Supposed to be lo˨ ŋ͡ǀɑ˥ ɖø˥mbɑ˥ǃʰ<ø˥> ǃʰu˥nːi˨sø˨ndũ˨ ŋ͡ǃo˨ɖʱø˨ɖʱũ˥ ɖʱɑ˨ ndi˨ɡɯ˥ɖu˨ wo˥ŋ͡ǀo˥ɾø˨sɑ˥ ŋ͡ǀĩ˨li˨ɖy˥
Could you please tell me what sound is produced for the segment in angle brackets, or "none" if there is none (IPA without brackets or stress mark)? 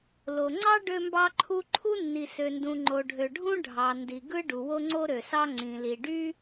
u˥